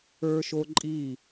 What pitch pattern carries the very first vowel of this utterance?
high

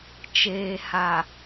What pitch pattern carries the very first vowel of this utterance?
low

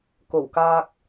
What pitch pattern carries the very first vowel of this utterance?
low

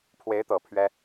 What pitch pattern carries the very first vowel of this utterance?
rising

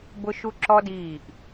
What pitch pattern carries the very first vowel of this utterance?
high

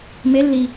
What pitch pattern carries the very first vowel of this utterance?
rising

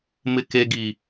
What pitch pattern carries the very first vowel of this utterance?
low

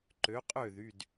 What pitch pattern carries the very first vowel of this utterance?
rising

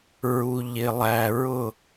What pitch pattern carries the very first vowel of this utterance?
low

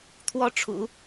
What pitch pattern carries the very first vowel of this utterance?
high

